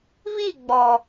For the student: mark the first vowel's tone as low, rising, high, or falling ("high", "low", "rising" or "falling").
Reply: falling